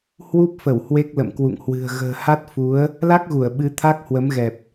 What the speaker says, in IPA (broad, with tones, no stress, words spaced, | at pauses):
hwu˦˥p̚fə˧˩w hwe˦˥k̚lə̰˧˨mkwṵ˧˨ŋhwɨ̤˨˩ə̯ ɣə̤ː˨˩ha˦˥t̚fu˨˦ə̯ | la˦˥k̚ɣu˧˩ə̯ ɓɨ˨˦ t̪ʰa˦˥k̚hwə˨˦mɣɛ˨˩p̚